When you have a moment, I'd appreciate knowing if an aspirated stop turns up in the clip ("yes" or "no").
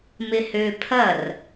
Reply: yes